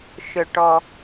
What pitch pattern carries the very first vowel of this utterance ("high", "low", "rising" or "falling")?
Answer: low